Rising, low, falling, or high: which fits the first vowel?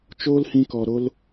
high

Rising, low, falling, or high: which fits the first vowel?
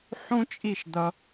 high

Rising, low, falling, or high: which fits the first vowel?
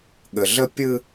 low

